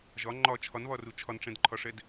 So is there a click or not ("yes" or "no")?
yes